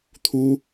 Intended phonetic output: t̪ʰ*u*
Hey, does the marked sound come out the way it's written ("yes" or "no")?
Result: yes